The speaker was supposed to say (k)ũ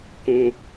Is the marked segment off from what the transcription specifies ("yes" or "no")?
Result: no